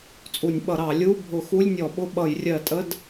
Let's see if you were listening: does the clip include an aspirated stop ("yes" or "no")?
no